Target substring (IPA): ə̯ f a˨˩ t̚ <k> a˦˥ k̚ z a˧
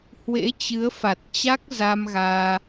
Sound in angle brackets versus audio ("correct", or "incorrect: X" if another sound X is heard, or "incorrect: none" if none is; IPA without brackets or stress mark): incorrect: t͡ɕ